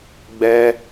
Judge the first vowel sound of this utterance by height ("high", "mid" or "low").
mid